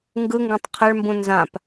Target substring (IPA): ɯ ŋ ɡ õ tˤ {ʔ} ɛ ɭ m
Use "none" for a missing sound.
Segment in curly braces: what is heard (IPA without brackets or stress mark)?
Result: qʰ